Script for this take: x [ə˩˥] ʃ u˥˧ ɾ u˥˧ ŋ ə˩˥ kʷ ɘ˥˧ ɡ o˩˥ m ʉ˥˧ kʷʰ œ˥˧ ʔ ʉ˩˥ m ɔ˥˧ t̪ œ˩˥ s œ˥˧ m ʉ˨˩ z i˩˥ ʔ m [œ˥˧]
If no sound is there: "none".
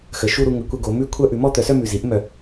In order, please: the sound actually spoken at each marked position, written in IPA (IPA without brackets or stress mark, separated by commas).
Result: ə˩˥, œ˨˩